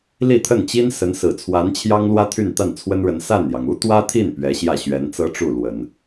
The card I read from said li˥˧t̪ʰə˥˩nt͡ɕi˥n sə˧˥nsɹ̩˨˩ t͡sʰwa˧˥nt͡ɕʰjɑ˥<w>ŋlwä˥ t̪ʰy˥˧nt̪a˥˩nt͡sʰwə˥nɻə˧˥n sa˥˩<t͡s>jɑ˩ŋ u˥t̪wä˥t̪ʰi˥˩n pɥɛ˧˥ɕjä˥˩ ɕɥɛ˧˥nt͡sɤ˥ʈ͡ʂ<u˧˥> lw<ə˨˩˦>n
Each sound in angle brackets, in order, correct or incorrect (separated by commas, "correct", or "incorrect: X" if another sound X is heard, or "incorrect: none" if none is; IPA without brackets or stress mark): incorrect: none, incorrect: n, incorrect: u˥˩, correct